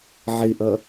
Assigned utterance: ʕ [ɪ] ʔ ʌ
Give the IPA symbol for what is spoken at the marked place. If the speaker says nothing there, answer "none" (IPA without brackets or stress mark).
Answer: ɪ